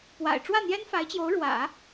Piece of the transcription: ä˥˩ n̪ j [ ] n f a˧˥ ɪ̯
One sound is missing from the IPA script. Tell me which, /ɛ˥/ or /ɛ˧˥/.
ɛ˥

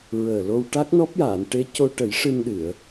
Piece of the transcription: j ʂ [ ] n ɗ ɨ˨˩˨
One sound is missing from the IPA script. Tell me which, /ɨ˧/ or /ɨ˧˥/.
ɨ˧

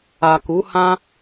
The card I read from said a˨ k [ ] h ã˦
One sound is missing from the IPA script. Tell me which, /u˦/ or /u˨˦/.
u˨˦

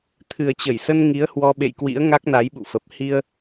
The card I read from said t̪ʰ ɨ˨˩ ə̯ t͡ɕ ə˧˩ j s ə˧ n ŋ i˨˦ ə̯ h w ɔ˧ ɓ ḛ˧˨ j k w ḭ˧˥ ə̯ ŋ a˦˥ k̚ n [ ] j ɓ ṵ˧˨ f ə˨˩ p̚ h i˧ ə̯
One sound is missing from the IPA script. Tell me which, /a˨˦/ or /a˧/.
a˨˦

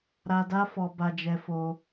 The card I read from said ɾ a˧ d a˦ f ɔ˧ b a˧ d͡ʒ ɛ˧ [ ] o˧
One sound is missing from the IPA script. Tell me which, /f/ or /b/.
f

